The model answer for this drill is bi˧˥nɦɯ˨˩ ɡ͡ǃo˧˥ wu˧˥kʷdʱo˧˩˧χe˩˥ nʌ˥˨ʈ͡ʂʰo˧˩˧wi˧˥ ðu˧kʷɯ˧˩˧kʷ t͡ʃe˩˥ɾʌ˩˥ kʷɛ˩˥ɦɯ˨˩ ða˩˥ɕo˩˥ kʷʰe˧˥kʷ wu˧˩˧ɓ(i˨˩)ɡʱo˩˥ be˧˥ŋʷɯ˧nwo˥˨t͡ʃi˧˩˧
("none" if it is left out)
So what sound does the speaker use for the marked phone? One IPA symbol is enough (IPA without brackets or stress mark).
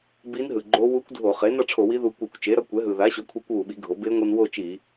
i˩˥